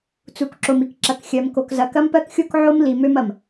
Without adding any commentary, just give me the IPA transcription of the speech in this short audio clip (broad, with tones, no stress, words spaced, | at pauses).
t͡su˨kǁo˨m i˨kǁɐ˨k xʲɜ˨m ko˨kzɐ˨ kɐ˦mpɜ˦kxʲo˦k ʕo˦mli˨ mø˦mɐ˨m